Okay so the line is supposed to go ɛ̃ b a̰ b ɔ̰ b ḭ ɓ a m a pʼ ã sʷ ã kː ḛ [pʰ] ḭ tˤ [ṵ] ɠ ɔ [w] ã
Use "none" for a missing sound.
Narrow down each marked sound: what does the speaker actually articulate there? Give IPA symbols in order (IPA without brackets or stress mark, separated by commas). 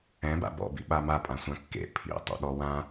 pʰ, o̰, w